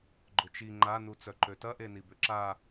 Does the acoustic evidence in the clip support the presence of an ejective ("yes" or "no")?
no